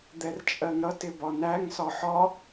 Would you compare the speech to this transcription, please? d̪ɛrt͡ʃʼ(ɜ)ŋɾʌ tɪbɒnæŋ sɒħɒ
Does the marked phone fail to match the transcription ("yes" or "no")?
no